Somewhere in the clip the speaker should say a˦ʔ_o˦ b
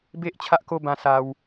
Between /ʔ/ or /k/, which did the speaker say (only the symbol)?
k